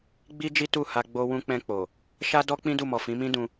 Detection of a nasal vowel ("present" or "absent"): present